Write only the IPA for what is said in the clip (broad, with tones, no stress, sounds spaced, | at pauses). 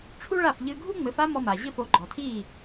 ʈ͡ʂʰ u˥ ɭ a˥˩ f ʎ ɨ˧ ɡʱ u˥ ŋ͡m ɘ˩˥ f a˥ m ɔ˧ m a˩ ʑ ɘ˥˩ f o˩˥ ɡ͡ǃ ɔ˩ tʰ i˥˩